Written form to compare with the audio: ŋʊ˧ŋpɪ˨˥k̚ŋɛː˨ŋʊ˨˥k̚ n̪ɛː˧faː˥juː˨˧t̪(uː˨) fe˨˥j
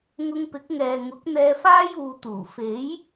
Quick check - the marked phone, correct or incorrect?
incorrect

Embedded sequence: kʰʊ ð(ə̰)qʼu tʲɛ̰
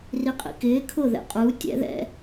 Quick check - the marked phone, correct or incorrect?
incorrect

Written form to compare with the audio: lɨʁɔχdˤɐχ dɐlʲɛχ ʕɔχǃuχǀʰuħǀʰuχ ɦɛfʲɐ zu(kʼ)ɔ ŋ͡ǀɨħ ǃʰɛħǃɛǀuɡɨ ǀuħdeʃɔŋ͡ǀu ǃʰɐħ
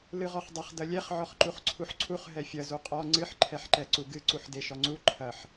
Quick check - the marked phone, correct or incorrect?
incorrect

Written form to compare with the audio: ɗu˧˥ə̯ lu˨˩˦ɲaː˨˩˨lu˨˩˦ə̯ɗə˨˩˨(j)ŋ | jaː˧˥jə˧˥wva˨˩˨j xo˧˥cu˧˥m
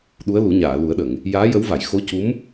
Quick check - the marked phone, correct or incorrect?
incorrect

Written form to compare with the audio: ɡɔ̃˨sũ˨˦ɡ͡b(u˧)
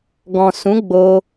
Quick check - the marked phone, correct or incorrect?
incorrect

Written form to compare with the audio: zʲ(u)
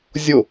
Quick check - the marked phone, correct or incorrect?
incorrect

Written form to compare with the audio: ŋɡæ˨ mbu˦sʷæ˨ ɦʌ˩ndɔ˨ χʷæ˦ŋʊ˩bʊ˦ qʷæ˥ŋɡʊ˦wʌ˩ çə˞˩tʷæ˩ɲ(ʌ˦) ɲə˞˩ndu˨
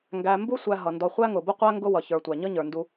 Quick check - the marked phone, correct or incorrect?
correct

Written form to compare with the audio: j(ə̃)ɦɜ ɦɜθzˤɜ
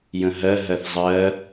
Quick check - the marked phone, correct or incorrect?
correct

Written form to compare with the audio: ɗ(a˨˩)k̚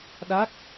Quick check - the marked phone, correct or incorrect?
incorrect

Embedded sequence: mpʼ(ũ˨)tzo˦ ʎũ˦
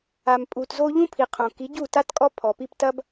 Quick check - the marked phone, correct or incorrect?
incorrect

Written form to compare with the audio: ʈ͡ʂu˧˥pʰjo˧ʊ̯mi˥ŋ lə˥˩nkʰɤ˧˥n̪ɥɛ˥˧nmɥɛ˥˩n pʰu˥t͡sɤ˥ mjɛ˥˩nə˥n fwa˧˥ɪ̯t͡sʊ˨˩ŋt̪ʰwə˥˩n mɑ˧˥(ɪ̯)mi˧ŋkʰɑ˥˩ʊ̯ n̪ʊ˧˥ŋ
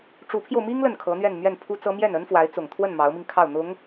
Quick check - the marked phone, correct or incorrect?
incorrect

